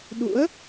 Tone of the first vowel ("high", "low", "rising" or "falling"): rising